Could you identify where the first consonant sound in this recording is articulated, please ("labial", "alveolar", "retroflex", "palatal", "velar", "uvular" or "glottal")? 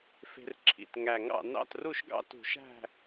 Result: labial